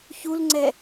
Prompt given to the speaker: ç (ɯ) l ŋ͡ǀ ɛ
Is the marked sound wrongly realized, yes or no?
yes